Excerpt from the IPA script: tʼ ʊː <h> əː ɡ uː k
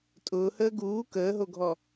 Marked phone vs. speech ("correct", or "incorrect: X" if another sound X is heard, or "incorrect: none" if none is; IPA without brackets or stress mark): correct